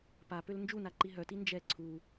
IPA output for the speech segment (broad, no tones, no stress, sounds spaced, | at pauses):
p a p ø l n d͡ʒ u n a ǃ i ɦ œ t i n d͡ʒ ɛ ǀʰ u